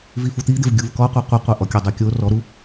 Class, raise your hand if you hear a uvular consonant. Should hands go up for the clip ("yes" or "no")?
yes